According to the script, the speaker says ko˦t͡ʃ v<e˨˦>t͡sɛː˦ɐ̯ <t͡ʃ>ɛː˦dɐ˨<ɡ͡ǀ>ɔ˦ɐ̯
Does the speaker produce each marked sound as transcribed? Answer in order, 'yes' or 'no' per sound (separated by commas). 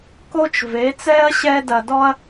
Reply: yes, no, no